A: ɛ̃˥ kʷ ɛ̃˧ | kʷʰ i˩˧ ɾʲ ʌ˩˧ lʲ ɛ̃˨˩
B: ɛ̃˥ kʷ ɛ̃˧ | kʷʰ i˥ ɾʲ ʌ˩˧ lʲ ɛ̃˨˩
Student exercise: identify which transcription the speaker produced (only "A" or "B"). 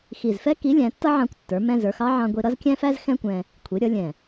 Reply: A